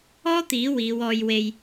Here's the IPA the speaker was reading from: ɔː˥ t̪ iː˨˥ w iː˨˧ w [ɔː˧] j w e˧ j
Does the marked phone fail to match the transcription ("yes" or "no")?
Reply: no